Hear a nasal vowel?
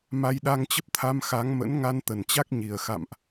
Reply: no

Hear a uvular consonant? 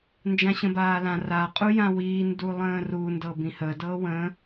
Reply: yes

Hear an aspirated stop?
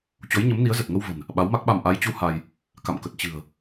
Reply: no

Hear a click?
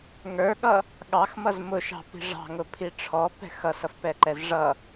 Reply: yes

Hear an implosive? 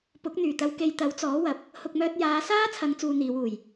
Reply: no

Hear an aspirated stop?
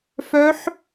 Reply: no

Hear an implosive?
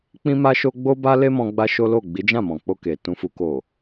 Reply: no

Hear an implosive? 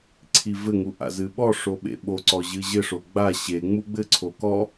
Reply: yes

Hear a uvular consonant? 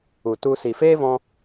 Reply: no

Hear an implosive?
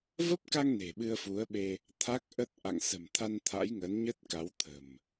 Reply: yes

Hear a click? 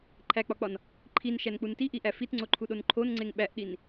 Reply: yes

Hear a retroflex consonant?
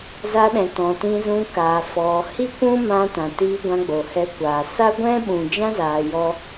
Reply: no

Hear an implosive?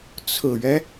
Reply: no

